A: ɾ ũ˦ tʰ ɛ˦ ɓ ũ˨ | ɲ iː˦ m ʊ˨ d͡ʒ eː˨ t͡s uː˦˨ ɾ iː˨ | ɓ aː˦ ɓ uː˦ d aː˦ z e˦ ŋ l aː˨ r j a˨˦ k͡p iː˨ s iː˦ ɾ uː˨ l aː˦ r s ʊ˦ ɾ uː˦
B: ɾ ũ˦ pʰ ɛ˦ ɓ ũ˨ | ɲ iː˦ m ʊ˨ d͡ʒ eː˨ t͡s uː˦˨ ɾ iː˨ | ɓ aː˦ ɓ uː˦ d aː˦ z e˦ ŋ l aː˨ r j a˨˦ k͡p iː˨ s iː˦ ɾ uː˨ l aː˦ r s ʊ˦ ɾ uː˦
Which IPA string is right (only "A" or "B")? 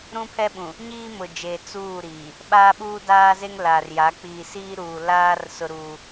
B